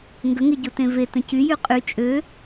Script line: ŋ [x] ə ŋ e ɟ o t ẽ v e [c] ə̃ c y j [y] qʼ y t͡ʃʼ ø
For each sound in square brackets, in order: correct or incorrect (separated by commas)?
incorrect, incorrect, correct